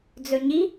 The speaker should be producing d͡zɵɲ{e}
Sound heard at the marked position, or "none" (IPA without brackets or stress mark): i